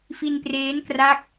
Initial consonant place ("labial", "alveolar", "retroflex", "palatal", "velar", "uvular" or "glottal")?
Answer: labial